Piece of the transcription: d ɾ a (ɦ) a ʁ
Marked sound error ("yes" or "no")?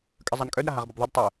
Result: no